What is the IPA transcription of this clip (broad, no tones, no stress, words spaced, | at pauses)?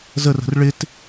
zərə̤r ɭɪt